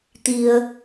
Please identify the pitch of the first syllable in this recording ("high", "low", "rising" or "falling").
low